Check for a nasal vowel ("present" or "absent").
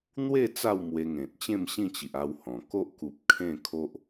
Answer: present